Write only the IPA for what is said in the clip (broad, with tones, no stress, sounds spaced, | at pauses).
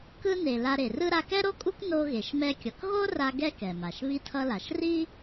k ɯ˧ n e˩ l a˧ ɾ e˩ r ɯ˥ ɾ a˧ k ɛ˥ ɾ o˥ kʼ u˥ k n o˧ ɣ e˩ ʃ m ɛ˧ kʲ ʌ˩ k ɣ o˥ r a˧ ɡ ɛ˥ k ɛ˩ m a˩ ʃ β i˧ tʰ ʌ˧ l a˩ ʃ r i˥